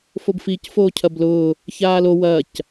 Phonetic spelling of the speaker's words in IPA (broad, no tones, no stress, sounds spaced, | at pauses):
f o b f i c f oː cʰ ɐ b l ʊː | ç aː l o w ɐː c